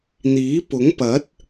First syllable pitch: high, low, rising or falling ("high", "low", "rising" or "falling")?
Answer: rising